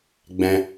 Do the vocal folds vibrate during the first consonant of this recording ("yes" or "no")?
yes